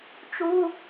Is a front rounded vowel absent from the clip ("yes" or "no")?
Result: yes